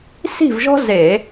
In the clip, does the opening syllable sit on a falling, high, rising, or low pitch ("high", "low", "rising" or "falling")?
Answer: falling